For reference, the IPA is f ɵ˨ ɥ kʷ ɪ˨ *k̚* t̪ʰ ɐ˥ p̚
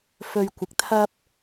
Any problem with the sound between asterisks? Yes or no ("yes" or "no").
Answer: no